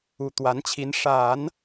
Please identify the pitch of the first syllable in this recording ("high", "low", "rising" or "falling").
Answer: low